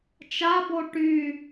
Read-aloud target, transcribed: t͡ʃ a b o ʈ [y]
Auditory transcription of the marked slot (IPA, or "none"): y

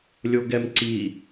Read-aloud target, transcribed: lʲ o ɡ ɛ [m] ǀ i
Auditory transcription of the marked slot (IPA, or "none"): m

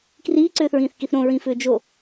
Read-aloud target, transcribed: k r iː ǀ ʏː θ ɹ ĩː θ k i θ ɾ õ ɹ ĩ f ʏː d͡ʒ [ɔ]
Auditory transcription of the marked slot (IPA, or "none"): o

